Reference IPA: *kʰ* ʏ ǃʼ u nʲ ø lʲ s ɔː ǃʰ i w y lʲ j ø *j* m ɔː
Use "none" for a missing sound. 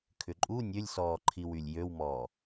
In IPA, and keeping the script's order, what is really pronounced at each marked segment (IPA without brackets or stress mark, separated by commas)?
kʰ, w